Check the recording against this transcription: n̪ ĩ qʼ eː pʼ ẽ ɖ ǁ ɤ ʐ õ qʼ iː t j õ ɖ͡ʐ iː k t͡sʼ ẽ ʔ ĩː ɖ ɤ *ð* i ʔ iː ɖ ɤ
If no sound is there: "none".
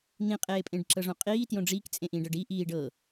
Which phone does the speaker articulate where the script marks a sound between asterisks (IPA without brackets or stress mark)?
ɖ